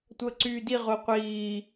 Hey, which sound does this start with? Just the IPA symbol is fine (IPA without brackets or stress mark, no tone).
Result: tʷ